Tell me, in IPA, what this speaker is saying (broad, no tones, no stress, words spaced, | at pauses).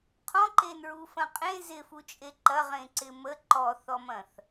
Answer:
qʰɔ̃ǃenɹufɐ̃ qʼẽ zɪfut͡ʃʼe ǃɐʁẽǀɪ mə ǃɔθɔmɐ̃θ